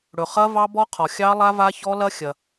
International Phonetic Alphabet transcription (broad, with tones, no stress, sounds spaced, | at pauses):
ɽ ɵ˩ χ ɐ˦˥ v ɑ˦˥ b ɔ˦˥ qʰ ɔ˩ xʲ ɑ˦˥ lˠ a˦˥ v a˦˥ ç ɔ˦˥ l ɐ˦˥ xʲ ɐ˩